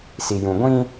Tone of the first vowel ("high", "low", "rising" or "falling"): low